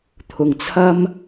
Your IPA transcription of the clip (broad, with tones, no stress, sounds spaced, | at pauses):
t̪ʰ ʊ˨˩ ŋ t͡sʰ ɐ˥ m